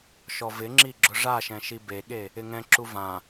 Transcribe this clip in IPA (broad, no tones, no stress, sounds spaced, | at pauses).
ʃ ɔ v ɪ ŋ͡ǁ i ɡ͡ǁ ʊ ʐ a ʃ ɛ̃ ʃ i b e ɠ e | ɪ ŋ ɛ̃ ǁ u v ã